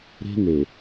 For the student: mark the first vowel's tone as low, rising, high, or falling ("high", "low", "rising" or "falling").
high